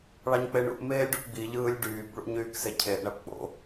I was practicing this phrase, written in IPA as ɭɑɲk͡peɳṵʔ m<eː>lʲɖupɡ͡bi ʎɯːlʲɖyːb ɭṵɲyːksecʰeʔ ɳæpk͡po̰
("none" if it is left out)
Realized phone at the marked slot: eː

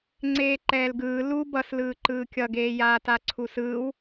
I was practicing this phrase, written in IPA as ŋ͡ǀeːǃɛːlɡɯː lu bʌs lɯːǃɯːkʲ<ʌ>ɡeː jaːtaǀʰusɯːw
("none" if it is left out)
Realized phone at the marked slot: ʌ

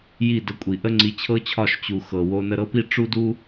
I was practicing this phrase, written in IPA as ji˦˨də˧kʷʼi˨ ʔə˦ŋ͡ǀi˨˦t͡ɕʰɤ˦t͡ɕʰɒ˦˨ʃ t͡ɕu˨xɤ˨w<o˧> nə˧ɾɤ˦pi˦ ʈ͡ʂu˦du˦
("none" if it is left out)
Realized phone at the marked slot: o˧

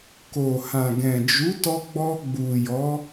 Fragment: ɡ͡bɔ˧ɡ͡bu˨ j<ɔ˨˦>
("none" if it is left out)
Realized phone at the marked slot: ɔ˨˦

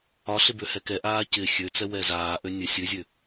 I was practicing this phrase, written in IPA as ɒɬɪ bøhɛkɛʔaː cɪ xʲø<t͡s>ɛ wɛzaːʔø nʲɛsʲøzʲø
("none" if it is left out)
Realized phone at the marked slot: t͡s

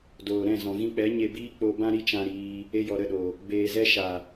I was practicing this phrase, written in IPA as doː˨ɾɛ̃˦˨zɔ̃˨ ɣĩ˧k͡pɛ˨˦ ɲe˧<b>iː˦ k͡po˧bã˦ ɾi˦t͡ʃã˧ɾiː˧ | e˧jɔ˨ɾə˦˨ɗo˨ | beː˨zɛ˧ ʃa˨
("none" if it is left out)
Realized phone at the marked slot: b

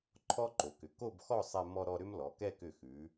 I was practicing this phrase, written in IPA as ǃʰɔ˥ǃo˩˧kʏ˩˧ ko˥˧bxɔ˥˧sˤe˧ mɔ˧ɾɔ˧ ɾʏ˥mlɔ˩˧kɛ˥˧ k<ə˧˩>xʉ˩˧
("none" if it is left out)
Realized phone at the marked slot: ʏ˧˩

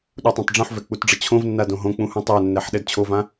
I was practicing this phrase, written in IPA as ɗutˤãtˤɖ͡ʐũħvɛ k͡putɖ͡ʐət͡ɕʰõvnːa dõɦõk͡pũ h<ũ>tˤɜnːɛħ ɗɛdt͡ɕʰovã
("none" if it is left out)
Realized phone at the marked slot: ũ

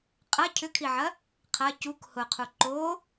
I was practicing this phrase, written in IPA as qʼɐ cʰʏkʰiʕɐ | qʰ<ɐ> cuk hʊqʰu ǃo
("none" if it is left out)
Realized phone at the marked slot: ɐ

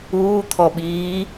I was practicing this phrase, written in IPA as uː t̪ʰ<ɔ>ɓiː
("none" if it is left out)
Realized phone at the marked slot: ɔ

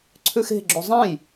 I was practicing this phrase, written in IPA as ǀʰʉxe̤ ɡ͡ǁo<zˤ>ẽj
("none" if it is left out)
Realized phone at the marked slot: zˤ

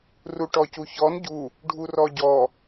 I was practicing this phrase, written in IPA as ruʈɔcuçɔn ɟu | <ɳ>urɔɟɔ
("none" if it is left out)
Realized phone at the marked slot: ɖʱ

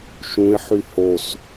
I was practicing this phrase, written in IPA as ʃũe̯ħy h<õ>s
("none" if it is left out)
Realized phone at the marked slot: o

